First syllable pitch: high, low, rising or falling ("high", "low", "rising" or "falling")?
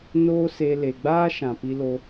high